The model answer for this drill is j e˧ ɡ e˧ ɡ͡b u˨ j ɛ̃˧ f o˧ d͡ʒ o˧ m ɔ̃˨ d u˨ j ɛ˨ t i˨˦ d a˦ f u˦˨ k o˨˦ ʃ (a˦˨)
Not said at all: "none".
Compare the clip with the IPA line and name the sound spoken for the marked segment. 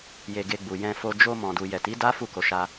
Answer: a˧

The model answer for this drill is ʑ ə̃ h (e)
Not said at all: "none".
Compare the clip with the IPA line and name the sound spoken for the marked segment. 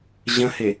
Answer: e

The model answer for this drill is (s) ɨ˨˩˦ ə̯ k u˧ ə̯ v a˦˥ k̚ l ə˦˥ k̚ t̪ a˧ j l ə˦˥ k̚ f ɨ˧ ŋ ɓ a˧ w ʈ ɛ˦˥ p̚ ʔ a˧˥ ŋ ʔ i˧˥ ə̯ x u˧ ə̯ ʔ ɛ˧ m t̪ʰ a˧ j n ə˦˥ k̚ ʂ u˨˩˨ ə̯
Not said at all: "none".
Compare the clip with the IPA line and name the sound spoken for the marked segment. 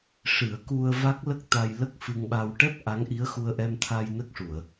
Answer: ʂ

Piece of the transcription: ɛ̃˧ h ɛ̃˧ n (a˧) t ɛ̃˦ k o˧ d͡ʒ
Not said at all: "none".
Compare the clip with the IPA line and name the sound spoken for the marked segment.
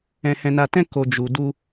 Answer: a˧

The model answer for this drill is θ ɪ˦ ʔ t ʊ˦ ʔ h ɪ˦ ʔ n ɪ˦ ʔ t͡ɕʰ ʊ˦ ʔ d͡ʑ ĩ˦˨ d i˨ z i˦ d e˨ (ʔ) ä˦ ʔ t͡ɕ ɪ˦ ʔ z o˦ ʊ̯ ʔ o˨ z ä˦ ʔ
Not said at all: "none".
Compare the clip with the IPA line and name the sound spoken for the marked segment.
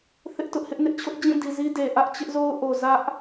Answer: ʔ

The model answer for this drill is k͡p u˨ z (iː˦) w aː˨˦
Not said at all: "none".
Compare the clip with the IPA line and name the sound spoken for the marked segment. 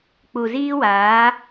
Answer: iː˦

